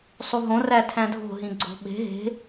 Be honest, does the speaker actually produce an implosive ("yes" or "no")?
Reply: yes